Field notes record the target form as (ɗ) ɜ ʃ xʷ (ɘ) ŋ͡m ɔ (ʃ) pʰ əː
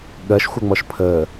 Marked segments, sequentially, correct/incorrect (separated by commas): incorrect, correct, correct